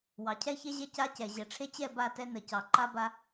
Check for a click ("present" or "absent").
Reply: present